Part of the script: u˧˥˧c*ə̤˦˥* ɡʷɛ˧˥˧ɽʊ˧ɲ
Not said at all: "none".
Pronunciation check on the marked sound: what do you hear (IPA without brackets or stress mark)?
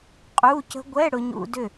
ə̤˦˥